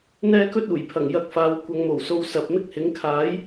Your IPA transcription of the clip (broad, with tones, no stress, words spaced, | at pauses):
n̪ɛː˥kɵ˥t̚uː˨˩jpʰɐ˨˩ŋ jɐ˧k̚faː˨˧w kʷɐ˨˧ŋmo˨˩wso˧w sɐ˨p̚ mɪ˥k̚hɪ˨˥ŋ kʰaː˨˥j